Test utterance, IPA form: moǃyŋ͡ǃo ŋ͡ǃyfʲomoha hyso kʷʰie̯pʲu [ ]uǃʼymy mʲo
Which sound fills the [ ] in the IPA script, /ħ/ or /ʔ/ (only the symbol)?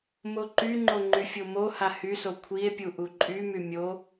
ʔ